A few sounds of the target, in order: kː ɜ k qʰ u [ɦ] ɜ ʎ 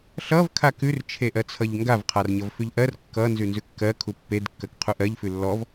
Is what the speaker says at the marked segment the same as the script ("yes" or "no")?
no